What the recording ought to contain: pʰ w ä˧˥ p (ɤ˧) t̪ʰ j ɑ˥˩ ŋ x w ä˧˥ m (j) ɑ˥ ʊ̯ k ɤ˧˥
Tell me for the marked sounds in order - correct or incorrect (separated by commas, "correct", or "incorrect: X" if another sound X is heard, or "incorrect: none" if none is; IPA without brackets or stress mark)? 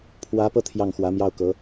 correct, correct